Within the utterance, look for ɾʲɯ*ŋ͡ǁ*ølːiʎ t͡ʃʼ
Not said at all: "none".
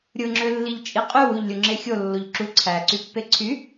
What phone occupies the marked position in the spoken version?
ŋ͡ǁ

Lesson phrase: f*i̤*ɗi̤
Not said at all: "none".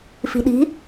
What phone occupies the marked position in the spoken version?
i̤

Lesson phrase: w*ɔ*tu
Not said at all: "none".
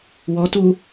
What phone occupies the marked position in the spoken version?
ɔ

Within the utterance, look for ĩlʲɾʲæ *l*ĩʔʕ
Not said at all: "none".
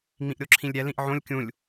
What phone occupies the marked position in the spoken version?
l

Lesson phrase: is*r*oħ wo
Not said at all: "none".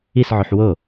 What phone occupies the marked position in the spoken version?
ʕ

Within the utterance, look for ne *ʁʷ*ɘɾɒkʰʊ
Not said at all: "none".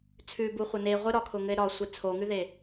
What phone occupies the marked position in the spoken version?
ʁʷ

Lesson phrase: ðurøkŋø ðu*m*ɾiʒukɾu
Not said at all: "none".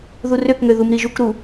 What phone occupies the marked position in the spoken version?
m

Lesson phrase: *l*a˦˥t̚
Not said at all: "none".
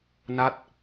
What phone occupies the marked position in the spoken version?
n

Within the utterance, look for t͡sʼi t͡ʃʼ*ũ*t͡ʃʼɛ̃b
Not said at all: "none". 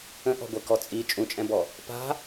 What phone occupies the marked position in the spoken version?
ũ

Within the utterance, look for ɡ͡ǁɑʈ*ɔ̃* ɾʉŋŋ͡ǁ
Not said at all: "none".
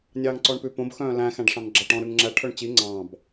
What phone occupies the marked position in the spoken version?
ɔ̃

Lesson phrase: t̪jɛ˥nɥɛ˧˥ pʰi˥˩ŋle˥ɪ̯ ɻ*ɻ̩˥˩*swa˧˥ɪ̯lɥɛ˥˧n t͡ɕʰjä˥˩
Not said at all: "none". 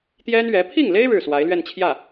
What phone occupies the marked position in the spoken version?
ɻ̩˥˩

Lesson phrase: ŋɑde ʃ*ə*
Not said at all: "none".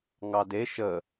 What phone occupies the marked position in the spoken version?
ə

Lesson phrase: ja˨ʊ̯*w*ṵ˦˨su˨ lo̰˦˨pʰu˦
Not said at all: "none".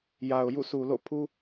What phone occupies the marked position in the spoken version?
j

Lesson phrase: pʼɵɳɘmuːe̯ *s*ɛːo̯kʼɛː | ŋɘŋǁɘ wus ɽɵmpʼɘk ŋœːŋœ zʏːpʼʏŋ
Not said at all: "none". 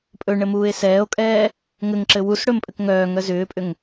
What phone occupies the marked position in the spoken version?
s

